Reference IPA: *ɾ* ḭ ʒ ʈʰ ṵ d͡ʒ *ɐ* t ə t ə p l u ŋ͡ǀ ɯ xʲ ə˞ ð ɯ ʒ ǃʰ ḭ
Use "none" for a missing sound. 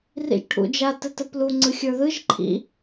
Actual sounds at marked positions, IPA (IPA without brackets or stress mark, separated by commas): r, a